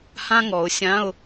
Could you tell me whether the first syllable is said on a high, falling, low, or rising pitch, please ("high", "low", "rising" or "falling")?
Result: high